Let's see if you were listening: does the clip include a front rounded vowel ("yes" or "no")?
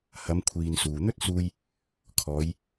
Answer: no